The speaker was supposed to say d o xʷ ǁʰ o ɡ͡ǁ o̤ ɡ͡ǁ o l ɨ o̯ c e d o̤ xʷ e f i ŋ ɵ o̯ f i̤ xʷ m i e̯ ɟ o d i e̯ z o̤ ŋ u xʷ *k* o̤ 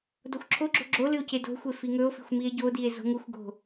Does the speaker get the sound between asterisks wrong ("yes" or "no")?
yes